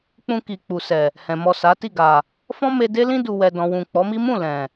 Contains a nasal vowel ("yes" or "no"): yes